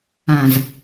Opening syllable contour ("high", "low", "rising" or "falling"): low